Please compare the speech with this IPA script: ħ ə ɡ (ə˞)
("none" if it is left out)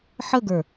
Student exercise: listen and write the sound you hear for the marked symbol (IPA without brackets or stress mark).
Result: ə˞